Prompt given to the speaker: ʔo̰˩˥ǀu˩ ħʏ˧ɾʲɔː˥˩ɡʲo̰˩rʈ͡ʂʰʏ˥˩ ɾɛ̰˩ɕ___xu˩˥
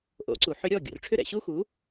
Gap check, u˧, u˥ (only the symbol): u˥